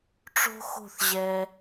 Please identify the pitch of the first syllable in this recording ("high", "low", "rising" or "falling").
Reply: high